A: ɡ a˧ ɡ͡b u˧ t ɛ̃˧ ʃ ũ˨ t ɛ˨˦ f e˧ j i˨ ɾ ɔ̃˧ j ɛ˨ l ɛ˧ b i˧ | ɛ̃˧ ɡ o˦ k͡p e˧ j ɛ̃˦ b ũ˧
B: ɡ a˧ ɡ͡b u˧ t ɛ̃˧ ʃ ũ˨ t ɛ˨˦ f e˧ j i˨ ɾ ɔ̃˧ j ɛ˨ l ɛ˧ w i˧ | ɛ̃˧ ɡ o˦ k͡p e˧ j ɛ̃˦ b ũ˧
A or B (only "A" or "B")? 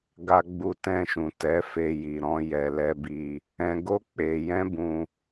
A